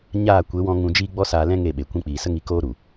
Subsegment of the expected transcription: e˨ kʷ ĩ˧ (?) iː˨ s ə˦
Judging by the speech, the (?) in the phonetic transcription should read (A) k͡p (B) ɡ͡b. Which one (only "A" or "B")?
A